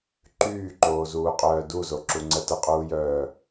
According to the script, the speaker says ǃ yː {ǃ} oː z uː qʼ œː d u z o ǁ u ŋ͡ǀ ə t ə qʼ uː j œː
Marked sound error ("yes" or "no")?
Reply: no